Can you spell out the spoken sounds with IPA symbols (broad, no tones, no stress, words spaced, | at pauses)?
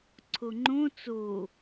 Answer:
ǀʰoŋ͡ǃõ t͡so